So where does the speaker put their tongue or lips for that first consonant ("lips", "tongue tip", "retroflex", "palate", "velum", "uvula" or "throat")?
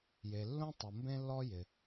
palate